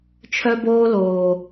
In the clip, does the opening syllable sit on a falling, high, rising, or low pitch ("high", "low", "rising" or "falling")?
high